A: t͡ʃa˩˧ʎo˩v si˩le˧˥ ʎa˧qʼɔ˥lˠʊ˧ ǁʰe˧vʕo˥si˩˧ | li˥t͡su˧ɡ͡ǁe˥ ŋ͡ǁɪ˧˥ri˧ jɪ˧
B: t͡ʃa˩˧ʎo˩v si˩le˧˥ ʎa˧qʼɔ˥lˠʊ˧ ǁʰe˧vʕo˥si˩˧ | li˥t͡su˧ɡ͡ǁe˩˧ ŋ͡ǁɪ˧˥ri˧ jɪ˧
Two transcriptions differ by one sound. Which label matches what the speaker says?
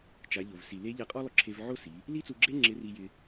A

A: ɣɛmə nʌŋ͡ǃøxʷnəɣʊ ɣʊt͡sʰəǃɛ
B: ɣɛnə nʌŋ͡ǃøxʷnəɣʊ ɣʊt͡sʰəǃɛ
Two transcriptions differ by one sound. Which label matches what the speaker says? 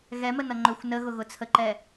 A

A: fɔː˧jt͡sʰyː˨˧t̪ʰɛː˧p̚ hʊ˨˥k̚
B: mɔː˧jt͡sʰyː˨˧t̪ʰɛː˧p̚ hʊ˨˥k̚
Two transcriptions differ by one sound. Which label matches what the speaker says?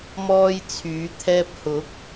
B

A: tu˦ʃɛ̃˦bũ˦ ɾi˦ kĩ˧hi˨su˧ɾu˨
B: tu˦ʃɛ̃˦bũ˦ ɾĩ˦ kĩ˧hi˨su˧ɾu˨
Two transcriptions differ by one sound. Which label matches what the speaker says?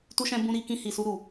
A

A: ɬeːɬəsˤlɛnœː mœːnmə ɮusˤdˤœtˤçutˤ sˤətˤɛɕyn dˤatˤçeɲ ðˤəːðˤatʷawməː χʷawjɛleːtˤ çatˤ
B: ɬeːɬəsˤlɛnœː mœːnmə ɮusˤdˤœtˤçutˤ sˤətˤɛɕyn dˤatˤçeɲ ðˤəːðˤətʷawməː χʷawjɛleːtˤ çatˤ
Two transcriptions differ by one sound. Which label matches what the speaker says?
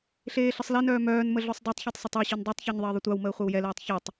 B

